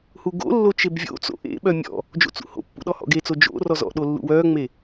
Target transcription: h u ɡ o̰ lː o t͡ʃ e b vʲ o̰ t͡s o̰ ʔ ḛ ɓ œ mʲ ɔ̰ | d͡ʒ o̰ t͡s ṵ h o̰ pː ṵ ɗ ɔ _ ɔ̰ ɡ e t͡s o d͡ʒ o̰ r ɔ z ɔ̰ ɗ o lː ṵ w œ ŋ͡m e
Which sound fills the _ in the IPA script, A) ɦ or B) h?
B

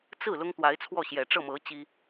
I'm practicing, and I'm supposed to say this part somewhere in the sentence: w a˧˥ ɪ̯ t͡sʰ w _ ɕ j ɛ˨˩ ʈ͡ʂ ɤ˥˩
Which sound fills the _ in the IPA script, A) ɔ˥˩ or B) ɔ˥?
A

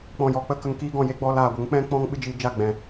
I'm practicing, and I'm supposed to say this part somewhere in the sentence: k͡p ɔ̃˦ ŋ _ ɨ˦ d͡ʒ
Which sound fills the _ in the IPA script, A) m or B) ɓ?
B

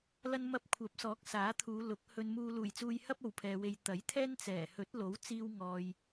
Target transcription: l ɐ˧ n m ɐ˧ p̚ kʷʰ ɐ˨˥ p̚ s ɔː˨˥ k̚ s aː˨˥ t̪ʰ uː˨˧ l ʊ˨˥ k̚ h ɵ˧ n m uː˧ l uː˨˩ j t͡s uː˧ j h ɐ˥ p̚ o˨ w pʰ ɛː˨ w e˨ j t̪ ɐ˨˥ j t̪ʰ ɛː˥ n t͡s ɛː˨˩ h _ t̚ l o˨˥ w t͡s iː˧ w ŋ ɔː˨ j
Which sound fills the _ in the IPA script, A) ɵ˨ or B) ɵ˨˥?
B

